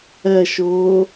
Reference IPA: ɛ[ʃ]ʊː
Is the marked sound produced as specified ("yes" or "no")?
yes